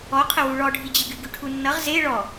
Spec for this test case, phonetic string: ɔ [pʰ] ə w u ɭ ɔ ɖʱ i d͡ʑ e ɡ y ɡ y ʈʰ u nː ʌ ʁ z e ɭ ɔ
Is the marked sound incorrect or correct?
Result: incorrect